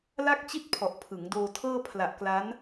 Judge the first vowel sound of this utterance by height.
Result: low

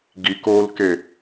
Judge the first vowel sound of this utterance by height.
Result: high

